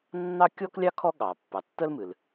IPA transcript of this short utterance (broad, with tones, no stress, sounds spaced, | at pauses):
nː ɑ˥ kʲ ɔ˥ k lʲ ɑ˥ kʰ ɔ˥ ɠ ɑ˩ pː ɑ˩ tː ə˥ l m ɨ˩ l